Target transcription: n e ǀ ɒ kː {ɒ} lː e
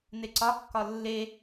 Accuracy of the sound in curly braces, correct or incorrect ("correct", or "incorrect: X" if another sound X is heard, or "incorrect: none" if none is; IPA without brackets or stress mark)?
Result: correct